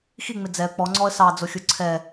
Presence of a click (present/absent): present